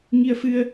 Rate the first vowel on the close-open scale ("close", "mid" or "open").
close